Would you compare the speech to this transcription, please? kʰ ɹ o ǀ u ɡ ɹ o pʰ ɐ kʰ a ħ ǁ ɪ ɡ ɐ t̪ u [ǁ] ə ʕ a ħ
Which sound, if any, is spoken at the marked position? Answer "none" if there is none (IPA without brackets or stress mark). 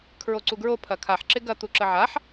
ǁ